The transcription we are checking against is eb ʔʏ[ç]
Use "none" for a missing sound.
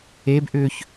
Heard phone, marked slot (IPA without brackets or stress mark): ç